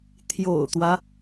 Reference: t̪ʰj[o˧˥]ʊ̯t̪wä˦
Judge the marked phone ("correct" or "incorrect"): incorrect